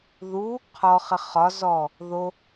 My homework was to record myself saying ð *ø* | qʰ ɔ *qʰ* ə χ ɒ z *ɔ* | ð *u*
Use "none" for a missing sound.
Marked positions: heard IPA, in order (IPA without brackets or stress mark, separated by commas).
u, χ, ɔ, o